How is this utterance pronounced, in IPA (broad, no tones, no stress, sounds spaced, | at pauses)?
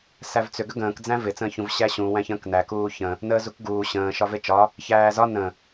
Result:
s æ v t͡s ʏ ɡ ʏ ɡ ə̃ː k d͡z æ̃ v ɪ t͡s ə̃ː ç ũ v ɕ æ ɕ ũ w æ̃ ç ə̃ː k n æ k uː ç ə̃ | n əː z u k ɡ uː ɕ ə̃ː ʃ ɒ v e t͡ʃ ɒ | ç æː z ɒ n ə̃